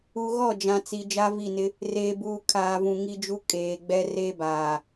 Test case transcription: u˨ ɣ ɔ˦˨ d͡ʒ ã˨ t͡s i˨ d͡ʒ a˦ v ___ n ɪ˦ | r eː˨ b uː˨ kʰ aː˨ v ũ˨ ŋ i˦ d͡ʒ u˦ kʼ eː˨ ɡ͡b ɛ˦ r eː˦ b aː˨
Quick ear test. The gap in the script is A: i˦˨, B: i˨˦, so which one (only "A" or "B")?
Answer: A